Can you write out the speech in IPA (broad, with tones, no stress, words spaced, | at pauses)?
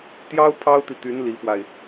t̪jɑ˥ʊ̯ pʰɑ˥ʊ̯t̪i˨t̪y˧˥n li˧˥fwa˧ɪ̯